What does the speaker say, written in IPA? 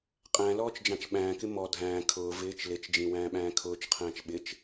qʼæ̃lɔːt͡ʃd͡ʒɑ̃t͡ʃ ɓæ̃ːkɪ mɔ dʱæ̃ː kʰʊː vɪːt͡ʃ lɪt͡ʃd͡ʒĩwæ̃ːɓæ̃ː kʰʊːt͡ʃqʰæ̃ːt͡ʃ ɓɪt͡ʃ

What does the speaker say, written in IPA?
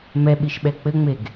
mɛɓiʃɓɛ k͡pɘŋ͡meɡ

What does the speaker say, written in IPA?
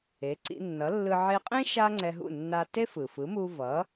e˩˥ǀḭ˧nːʌ˩˥lːɯ˧ ʕe˧qʼẽ˥ ʃa˥ŋ͡ǀɛ˧ɦṵ˥˩nːa˧ te˥fɯ˩fɯ˩˥mu˧ vʌ˩˥

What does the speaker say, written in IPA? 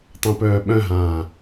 tˤœ̃pœːɓœ̃ɦãː

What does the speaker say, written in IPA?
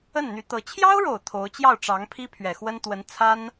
ə˥˩nn̪y˧˥t̪ɤ˧˥ t͡ɕʰjɑ˥ʊ̯ɻo˨˩ʊ̯ t̪ʰo˧˥ʊ̯ t͡ɕjɑ˥˩ʊ̯ʈ͡ʂɑ˧˥ŋ pʰi˥ pʰɥɛ˨˩xwə˥nt̪wə˧˥n t͡sʰa˥n

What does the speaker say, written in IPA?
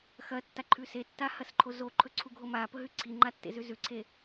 xɐtːaǃʰʉ setːahɐsǃʰo zoǃʰɵǀʰuɡʱo mapɵɦʉ ǀʰiŋ͡ǃatːḛzʉ zʉǀʰe

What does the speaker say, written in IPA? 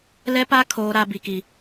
lɛ˦pa˦ kʰoː˦ɾa˦ bi˦ki˦

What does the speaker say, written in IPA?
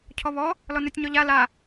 cʰɔβɔ | lɔnøtʲɲɔʎa la

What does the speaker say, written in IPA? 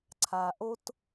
ǀʰa˧ ʔo˥t

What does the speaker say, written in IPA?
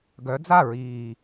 ɡœ˨˦d͡za˥˨ɹiː˨˩

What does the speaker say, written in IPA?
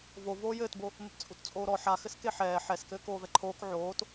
vo voːjɘːtbo | mɘpt͡sʼutt͡sʼoːɾɔ ħaxɘs keħɛː ħɛskɘː koːvɛǃʰoːk ʕoːt

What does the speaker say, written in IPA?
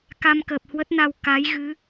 ka˧mkəː˨˩p̚hwə˦˥t̚na˧w ka˨˦jɣɨ˨˦

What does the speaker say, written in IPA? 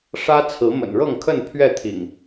ʂä˦ t͡sʰɹ̩˨˦mə̰˨˩nɻɤ˥˨ŋkʰə˥˨n pʰɥɛ˥˨t̪ʰḭ˨˩ŋ

